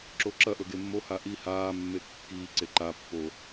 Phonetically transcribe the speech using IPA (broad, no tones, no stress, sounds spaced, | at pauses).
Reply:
ǁ o ǁ ɐ ʔ ɵ ɡ e mː o h a ʔ i h aː mː e kː iː ǀ e ǃ a pː o